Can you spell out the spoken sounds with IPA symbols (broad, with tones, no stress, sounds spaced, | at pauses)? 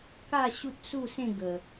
k a˥˧ ɕ u˦ t̚ s u˥˧ s ẽ˥˧ ɡ ə˨˩